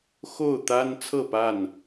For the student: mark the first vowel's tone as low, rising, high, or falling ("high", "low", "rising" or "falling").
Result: falling